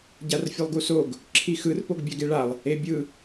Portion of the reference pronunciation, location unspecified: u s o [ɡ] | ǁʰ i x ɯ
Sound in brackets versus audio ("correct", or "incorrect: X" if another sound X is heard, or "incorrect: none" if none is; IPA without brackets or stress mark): correct